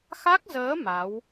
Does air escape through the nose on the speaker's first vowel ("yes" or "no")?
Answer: no